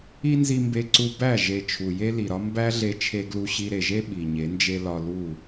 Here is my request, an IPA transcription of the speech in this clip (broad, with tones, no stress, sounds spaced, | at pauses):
i˦ n z i˧ m b e˧ ǀ u˧ b æ˦˨ ʒ e˨ t͡ʃʰ u˨ j e˦ l i˨ ɾ ɒ˦ m b æ˦ ɮ e˧ t͡ʃʰ e˧ ɡ l u˧ ɕ i˧ ɾ e˨ ʒ e˦ ɓ i˨ ɲ e˨˦ n d͡ʒ e˦ l ɒ˧ l u˦˨